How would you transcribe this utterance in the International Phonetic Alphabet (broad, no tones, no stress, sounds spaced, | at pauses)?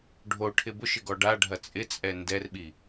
ɖʱ o ʈʰ ɪ b ʊ ʃ ɪ ɡ ɔ ɖ a ɖʱ ɐ t͡sʼ ɪ t͡sʼ ɛ n d ɛ r ɓ i